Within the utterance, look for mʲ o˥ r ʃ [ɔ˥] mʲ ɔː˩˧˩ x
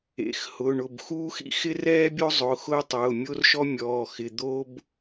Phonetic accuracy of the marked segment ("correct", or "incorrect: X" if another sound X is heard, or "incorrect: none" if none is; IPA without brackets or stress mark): correct